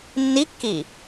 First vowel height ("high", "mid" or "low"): high